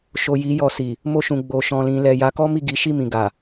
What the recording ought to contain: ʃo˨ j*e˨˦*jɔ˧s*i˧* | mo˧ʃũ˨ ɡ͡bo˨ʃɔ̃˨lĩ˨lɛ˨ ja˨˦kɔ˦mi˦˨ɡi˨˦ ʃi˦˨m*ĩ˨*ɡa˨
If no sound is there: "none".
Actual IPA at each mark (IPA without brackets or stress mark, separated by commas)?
i˨˦, i˨, ĩ˨